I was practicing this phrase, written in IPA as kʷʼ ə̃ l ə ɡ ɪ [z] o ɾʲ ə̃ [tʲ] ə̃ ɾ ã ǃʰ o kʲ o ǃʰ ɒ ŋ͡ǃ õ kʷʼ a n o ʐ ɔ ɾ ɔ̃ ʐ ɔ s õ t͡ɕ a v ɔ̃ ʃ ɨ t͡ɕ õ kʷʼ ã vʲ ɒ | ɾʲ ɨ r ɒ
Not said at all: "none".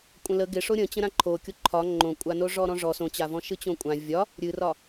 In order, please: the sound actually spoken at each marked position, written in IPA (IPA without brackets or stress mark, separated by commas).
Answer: ʂ, t͡ɕ